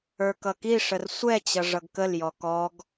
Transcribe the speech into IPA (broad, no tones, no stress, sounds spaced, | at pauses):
ə˞ k ʌ k i ʂ ə r sʷ ɛ t͡ɕ ʌ ʐ ʌ ɡ k ə l j ɔ k ɔ ɡ